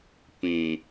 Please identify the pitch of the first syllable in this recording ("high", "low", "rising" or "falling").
low